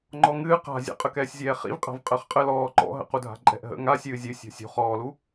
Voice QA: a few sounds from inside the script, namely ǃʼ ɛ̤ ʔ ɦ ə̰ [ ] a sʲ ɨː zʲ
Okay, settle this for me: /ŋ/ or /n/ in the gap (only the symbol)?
ŋ